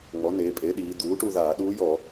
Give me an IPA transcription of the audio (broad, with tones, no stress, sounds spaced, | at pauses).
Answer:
ŋ͡m ɔ˩˥ n eː˩˧ pʼ e˩˥ ɗ iː˩˧ d̪ uː˩˥ ʈ u˥˧ ð aː˧˩˧ ɗ uː˧˥ j ɔ˧˩˧